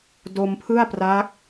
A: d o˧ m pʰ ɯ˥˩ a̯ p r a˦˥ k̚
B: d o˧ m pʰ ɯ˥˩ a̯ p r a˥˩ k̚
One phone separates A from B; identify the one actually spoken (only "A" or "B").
A